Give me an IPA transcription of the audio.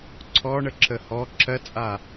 ǀʰ ɔ ɳ ə ǁʰ ə h ɔ ǁʰ ɜ t͡sʼ a

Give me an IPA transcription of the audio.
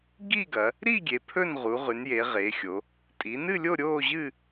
ɡ i˥˧ ɡ ɐ˩˧ | ɾ i˥˧ ɡʲ e˩˧ pʰ ɵ˥˧ n ʁ u˩˧ ʁ ʉ˩˧ n j e˩˧ ʁ e˩˧ xʲ o˩˧ | tʼ i˩˧ n ɨ˥˧ lʲ o˥˧ ɾʲ oː˥˧ ʑ ɨ˥˧

